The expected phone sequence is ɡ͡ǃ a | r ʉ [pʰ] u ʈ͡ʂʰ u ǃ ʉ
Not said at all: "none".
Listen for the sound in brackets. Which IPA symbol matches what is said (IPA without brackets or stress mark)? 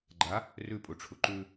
pʼ